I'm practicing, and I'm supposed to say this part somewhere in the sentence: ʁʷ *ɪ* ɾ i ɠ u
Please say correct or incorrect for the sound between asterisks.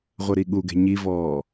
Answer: incorrect